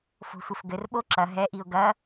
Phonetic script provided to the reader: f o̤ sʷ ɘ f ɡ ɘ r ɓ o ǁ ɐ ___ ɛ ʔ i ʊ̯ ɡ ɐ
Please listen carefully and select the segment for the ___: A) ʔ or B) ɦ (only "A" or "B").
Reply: B